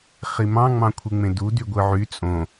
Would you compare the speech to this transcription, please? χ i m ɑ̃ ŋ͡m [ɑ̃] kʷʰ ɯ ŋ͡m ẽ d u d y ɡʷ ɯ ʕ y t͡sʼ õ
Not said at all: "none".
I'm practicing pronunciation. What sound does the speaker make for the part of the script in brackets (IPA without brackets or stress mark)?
ɑ̃